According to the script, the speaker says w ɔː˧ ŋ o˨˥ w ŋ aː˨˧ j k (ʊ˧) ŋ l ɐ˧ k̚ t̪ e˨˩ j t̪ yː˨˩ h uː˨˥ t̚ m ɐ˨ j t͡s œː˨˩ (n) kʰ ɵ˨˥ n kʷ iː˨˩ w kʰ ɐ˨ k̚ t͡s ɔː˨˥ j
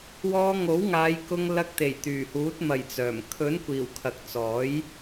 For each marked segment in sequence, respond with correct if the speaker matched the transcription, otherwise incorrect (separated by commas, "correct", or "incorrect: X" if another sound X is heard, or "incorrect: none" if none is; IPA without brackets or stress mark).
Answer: correct, incorrect: m